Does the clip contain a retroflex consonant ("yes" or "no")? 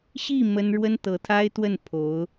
yes